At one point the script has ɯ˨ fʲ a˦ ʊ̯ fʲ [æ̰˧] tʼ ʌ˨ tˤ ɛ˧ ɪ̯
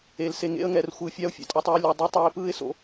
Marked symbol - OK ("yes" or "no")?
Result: no